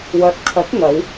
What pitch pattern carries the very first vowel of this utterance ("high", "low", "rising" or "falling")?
rising